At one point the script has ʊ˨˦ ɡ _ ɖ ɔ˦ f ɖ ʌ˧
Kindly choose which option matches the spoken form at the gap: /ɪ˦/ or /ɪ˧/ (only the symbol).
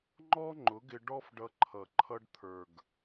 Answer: ɪ˧